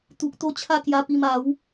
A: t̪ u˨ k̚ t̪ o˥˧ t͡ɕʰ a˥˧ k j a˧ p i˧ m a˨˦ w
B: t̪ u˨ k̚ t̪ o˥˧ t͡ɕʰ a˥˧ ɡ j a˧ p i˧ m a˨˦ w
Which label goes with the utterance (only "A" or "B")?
A